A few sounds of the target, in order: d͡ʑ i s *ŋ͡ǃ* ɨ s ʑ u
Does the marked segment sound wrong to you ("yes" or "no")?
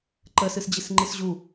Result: no